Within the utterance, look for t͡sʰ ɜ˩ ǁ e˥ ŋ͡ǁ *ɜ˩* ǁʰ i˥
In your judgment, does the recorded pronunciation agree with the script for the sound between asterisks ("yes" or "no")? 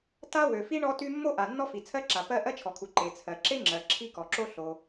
yes